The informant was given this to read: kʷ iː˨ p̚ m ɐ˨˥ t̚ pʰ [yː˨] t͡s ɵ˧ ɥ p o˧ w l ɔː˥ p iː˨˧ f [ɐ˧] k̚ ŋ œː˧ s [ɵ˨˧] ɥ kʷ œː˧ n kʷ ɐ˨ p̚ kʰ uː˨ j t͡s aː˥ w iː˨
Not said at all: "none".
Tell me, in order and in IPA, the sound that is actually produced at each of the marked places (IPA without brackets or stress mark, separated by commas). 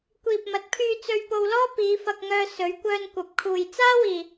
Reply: yː˧, ɐ˧, ɵ˨˧